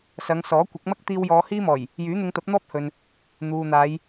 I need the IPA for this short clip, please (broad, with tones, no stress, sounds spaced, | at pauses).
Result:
s ɐ˨˧ ŋ s ɔː˨˥ kʷ ɐ˨˥ k̚ m ɐ˥ k̚ t̪ iː˧ w j ɔː˨˧ h iː˥ m ɔː˨˩ j | j yː˨˥ n̪ ɪ˧ ŋ t̪ ɐ˨˥ p̚ n̪ ɔː˥ p̚ h ɵ˨ n | n̪ uː˨ n̪ aː˨˧ j